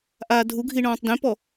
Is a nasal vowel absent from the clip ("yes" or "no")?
no